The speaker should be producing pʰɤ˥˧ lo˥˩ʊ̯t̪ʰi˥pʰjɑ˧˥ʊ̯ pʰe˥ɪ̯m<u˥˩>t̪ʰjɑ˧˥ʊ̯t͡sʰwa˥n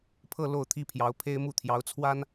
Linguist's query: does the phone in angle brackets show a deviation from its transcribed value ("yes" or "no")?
no